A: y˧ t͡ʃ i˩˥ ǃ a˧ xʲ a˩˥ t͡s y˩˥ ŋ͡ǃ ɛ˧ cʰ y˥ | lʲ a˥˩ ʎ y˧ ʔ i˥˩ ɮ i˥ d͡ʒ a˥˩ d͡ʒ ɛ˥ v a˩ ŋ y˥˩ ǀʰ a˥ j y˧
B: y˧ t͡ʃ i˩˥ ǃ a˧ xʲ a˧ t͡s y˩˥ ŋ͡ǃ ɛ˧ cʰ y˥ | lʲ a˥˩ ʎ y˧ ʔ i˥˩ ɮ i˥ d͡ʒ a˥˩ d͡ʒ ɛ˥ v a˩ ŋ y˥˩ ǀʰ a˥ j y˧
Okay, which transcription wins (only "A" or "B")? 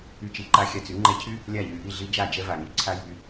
B